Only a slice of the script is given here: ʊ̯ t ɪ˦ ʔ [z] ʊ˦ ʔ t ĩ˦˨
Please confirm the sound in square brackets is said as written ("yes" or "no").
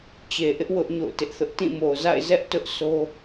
no